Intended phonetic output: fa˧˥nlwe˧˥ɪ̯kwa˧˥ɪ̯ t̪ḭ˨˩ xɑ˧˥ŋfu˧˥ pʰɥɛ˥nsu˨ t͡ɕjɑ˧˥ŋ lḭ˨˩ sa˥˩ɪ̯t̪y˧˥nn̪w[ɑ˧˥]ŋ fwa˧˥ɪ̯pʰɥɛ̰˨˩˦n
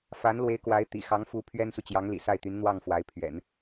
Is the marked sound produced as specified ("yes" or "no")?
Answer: no